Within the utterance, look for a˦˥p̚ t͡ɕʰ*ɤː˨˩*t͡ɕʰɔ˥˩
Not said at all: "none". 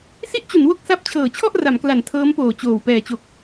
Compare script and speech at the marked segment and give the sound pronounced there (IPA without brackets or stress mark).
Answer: ɤː˨˩